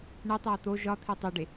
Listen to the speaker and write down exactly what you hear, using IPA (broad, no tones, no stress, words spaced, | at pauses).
ɳetˤæ t̪o ʒɒt̪ʰe tˤoɖe